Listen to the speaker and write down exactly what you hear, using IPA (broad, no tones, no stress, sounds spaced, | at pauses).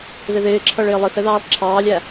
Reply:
ð ɪ ð ɪː ǁʰ ʌ ɭ ɪː lˠ ɪ θ ɛ ð ɑː lˠ ǁʰ ɑː lʲ æ